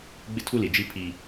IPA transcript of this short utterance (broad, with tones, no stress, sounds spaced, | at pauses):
ɡ͡b ɪ˦ tʰ u˦ l i˨ d͡ʒ i˦ pʰ i˦